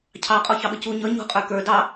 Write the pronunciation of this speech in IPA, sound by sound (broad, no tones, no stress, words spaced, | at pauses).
cʰɑqʼɔ çɑɓəcu ɲʌ ɲṳ qʼə˞kə˞ dɑ